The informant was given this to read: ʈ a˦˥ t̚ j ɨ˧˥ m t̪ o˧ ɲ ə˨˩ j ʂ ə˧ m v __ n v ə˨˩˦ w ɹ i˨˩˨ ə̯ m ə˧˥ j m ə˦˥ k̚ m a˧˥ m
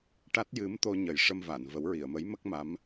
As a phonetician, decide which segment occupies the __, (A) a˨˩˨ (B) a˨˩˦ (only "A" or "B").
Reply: A